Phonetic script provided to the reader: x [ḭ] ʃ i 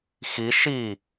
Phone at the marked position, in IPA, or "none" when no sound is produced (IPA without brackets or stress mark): i